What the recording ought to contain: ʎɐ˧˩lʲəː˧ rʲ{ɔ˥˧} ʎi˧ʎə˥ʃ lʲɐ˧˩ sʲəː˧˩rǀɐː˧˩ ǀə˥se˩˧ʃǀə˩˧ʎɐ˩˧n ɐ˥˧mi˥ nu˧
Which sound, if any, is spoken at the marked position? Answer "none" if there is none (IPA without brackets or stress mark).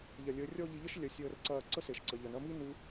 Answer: ɔ˥˧